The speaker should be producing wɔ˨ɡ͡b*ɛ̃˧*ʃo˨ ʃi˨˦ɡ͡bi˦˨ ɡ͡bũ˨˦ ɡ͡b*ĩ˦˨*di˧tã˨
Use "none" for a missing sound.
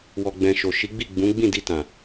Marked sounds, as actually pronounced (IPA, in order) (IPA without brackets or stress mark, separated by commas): ɛ̃˨, ĩ˦˨